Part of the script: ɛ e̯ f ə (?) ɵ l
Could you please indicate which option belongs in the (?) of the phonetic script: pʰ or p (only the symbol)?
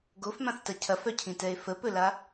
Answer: p